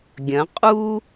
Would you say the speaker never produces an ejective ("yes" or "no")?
no